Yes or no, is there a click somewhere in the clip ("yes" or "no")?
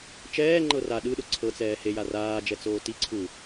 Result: yes